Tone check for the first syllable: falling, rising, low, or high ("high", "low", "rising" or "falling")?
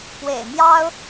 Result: low